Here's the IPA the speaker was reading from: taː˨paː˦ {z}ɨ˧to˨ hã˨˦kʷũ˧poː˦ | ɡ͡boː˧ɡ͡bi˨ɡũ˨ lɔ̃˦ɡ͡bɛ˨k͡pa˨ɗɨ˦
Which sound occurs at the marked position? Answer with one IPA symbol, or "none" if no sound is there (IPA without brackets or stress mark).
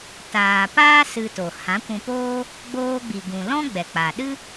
s